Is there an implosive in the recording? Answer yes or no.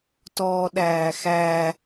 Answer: yes